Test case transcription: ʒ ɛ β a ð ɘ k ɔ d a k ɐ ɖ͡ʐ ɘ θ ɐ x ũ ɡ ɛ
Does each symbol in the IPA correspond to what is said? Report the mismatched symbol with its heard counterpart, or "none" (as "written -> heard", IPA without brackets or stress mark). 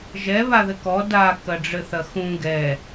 none